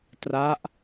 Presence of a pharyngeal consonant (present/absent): absent